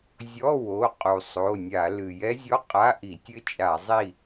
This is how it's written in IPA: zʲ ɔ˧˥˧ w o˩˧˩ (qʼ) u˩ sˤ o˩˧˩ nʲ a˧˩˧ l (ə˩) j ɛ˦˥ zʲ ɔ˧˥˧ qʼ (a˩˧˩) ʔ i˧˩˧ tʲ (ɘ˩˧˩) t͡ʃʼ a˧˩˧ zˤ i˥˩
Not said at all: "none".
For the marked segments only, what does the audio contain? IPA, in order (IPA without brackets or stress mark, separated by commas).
qʼ, ɨ˩, a˧˥˧, ɘ˦˥